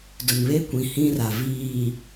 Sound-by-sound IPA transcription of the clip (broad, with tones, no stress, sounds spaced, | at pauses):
d ʊ˨ n β e˦ kʷ ĩ˨ h ĩ˦ r a˨ v iː˨